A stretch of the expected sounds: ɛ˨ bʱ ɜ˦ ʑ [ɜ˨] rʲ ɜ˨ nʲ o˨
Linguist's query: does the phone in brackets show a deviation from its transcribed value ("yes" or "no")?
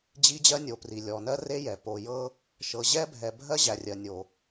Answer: yes